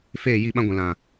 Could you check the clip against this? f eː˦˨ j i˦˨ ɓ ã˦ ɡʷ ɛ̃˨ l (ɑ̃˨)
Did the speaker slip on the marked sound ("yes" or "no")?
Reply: yes